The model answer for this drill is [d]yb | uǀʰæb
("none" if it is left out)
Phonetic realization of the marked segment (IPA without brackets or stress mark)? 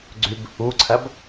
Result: ɡ͡ǀ